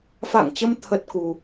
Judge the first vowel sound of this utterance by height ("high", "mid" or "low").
low